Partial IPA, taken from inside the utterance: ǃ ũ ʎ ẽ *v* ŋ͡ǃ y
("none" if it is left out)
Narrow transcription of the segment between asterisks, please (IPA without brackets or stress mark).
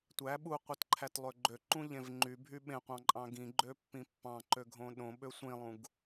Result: v